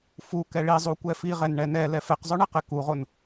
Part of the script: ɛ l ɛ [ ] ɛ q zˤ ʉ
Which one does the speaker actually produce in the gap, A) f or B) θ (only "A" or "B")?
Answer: A